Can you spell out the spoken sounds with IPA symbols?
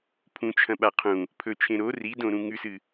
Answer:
pʰ ũ t͡ʃʰ ɐ̃ ɓ a qʰ ũ | pʰ ɵ t͡ʃʰ ẽ ɾ o r i d õ ɾ ũ ŋ ʉ s ɨ

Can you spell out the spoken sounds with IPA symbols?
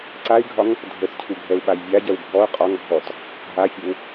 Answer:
ǀ a i̯ ɡʱ ɒ ŋ | dʱ ə t cʰ u ɡʱ ɛ u̯ ɓ a j vʲ a ɟ ɛ w bʱ ɔ u̯ qʼ ɒ ŋ bʱ ɔ t | ɦ a fʲ e w

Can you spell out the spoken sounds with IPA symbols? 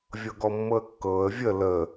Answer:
vʲ ɤ ɡ ɔ mː ɤ ə̯ kː ɤː ə̯ vʲ ə l ə

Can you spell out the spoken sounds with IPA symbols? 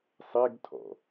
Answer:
sˤ e ɡ tʰ ɔ̰

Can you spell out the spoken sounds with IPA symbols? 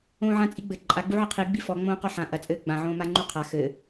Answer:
õː ʕ ã t͡sʼ i ɡ͡b ɘ ǃʼ a ɡ͡b u ʕ ɘ qʰ i ɡ͡b i f ɔ ŋ͡m õː q ɔ ħ ã ʔ ɐ t͡sʼ ɘː ɡ͡b ã ʕ õː m a ŋ͡ǃ u qʰ a x ɘ

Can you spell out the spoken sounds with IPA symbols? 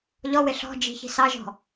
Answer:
ʎ ɔ w ɪ ɬ ɔ̤ d͡ʒ i̤ ç i̤ s ɑ ʒ ɔ̤

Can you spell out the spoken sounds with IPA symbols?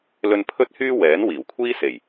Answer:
l ɵ˧ n pʰ ɵ˥ t̚ h yː˥ w ɛː˨˥ n w iː˨˩ w kʷʰ iː˥ s e˨˩ j

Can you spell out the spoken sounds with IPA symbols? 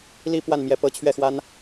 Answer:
l i˥˧ p w a˥˩ n m j ɛ˧˥ p ɤ˧˥ t͡ɕʰ ɥ ɛ˥˩ x w a˥ n

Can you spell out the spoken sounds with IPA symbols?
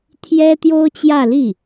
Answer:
t̪ʰ j ɛ˥ t̪ j o˥ ʊ̯ t͡ɕ j ä˥˧ l i˥˩

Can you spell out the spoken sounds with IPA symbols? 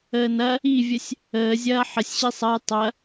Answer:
əː n ɐ | i vʲ ə sʲ | əː zʲ ɐː ħ ə sʲ ɕ i sˤ ɐ j tˤ ɐ

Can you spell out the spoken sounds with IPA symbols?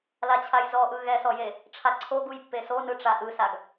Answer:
l a t͡ɕʰ a j z ɔ ʔ ɯ ɣ ɛ s ɔ j e | ʈ͡ʂʰ a ǀʰ o ɡ u j pː e s o n ɯ ʈ͡ʂ a ʔ ɯ s a ɡ

